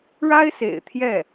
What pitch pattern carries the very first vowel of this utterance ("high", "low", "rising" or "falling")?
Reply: high